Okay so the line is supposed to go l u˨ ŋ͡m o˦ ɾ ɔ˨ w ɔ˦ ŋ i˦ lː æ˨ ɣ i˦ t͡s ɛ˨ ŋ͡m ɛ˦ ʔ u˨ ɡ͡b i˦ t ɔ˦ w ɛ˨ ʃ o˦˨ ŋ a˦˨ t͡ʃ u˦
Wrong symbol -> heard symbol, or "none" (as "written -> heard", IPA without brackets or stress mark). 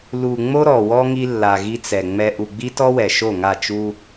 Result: æ˨ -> a˨